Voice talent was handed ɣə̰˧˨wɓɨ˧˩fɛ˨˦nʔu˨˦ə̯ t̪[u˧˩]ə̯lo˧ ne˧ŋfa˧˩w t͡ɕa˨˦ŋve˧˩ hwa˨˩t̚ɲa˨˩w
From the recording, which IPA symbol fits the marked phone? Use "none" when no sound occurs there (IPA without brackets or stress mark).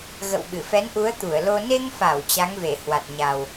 u˧˩